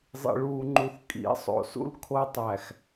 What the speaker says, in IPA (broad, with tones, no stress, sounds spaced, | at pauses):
zˤ ḭ˨ ɭ uː˨ ŋ͡ǃ u˨ θ kʼ ḭ˨˦ sˤ o̰˨ s ṵ˦ l kʰ o˦ tˤ æ˨ x